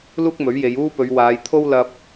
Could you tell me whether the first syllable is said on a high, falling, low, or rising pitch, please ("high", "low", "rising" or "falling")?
high